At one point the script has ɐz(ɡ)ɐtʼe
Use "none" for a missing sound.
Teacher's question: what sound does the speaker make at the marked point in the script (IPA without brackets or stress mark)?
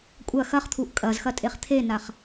x